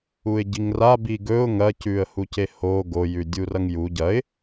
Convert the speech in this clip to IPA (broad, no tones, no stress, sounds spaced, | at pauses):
u ɪ̯ ɟ i ŋ r a b i ɡ ɵ ʊ̯ ŋ ɐ c ʉ ə̯ h u c e h o ɡ o j ʉ dʲ u r ɐ ŋ j u ɟ ɐ ɪ̯